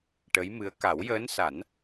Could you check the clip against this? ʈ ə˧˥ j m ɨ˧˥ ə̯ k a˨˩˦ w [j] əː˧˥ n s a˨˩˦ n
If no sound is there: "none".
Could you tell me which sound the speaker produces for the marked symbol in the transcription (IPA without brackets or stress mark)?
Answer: j